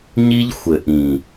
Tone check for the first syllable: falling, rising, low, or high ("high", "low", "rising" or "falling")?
high